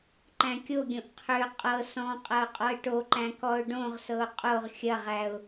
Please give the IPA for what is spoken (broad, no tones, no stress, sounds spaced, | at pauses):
ǃ æ̃ kʲ o ɡʲ õ ʔ qʰ ø qʼ ɤ s ɔ̃ qʼ ɐ ʊ̯ qʼ ɔ ɪ̯ ʈ o ǃ æ̃ k ɔ ʊ̯ ɖ õ ʁ s ɤ ʊ̯ qʼ o ʁ xʲ ɐ ʁ æ ʊ̯